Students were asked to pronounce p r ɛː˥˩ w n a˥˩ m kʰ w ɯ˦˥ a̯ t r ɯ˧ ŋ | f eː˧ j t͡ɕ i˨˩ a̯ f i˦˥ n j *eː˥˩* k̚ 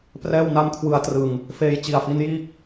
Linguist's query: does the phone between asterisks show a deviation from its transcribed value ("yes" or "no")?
yes